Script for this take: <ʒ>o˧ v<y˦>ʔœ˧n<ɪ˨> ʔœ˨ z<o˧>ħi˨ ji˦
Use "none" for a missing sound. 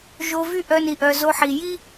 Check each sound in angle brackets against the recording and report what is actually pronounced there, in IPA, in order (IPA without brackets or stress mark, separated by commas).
ʒ, y˦, i˨, o˧